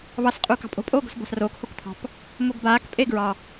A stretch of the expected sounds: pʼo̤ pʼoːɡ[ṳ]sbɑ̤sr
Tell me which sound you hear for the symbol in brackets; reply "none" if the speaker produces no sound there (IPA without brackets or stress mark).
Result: o̤